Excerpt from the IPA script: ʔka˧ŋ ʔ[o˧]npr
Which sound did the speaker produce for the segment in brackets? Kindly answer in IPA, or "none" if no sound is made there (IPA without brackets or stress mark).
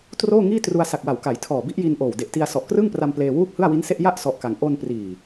o˧